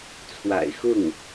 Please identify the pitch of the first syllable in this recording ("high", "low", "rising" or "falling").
low